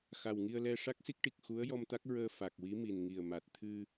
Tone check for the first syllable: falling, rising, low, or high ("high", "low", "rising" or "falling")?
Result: low